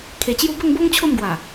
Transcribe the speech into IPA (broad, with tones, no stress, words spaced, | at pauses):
kʰe˨˩t͡ɕju˦ bə˥˧ŋbo˦ŋ t͡ɕʰo˥˧mɡwa˨˩